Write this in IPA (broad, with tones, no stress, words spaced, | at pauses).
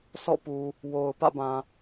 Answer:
sɔ̰˦˨pu˨ | wo˨ʊ̯ pä̰˦˨bã˨